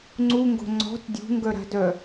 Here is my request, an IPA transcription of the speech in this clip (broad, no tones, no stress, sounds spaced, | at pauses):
ŋ͡ǀ u ŋ ɡ o̤ ŋ͡ǀ ɔ̤ t dʲ ṳ ŋ ɡ œ ɾ a̤ d œ